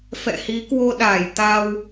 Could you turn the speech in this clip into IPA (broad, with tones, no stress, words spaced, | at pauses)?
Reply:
fɛ̰˧˨hi˨˦kwo˧ɗaː˧˩j t̪a˧w